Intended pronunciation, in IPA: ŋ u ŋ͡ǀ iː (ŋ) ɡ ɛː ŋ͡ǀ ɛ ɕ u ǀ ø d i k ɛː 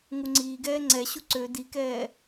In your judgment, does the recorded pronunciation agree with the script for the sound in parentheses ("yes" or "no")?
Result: no